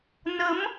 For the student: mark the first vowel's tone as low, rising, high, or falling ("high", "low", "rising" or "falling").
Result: rising